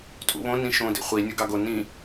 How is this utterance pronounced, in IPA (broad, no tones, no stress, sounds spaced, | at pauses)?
tʼ ṵ β õ n ĩ ʃ õ d ḭ χʷ i nʲ o ɡ ɑ ɡ o n ĩ